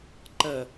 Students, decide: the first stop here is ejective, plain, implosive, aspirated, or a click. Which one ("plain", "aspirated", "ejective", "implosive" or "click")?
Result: click